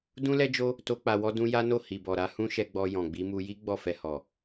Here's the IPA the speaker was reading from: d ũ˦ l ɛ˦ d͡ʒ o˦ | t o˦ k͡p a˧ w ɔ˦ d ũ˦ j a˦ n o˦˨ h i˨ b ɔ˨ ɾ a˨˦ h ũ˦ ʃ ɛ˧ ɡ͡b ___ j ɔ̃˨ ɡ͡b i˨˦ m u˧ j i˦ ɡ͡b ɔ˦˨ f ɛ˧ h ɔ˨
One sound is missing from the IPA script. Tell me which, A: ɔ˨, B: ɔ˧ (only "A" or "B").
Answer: B